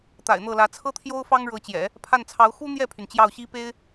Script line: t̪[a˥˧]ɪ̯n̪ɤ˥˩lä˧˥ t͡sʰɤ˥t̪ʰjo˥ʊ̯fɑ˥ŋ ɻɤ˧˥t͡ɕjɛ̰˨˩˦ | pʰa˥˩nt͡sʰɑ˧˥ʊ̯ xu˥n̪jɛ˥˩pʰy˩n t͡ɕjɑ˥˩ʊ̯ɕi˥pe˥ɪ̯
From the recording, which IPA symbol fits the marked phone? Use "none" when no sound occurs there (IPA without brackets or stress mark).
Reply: a̰˨˩